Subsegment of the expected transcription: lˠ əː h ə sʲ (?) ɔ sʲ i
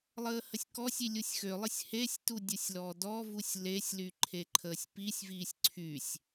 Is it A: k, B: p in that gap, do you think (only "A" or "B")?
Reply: A